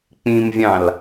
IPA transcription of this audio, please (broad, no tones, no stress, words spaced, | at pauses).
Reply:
k͡pĩmvʲɑ̃l